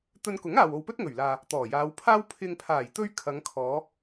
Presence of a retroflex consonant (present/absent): absent